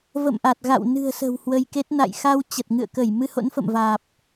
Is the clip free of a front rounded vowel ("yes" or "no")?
yes